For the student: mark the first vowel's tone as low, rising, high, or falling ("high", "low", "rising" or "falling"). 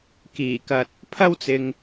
low